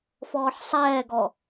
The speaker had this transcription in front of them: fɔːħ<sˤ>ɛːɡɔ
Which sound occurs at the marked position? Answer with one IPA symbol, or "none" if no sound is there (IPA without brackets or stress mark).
sˤ